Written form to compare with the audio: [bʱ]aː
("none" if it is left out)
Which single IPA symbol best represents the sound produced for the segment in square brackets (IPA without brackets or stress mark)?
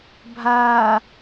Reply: bʱ